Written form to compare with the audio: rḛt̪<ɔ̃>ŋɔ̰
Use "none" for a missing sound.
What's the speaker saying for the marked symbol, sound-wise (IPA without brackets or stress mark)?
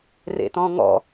ɔ̃